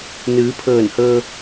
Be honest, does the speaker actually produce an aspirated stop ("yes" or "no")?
yes